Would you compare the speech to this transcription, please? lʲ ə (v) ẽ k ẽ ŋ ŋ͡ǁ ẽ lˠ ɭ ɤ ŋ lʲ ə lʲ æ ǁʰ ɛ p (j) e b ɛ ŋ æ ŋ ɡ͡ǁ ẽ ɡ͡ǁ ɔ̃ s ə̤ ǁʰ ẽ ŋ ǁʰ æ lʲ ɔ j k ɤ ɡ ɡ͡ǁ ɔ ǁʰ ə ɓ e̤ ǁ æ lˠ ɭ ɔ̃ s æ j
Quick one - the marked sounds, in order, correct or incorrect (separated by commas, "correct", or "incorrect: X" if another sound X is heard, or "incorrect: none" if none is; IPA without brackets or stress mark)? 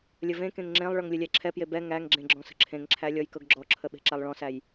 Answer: correct, correct